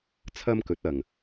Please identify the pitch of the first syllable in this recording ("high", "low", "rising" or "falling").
high